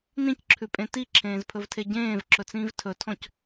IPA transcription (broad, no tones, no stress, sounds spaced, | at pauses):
n ĩ c ǁʰ ʉ pʼ ẽ t i ǁʰ ẽː z pʰ ɵ v tʰ e ɟ ẽː v ǁ ɵ t͡s ĩː v tʰ ɵ tʰ ɔ̃ c